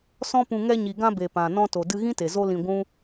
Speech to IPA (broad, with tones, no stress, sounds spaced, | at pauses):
s ɔ̃˦ p ũ˧ ŋ ɛ˧ ɲ i˨ ɡ ã˧ b e˨ p ã˨ n ɔ̃˧ t o˨ d ɨ˧ ɣ ĩ˦ t e˨ z o˧ l ĩ˧ ɡʷ ũ˦